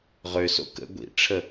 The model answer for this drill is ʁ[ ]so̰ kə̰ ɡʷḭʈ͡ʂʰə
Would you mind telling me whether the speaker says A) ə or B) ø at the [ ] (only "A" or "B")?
B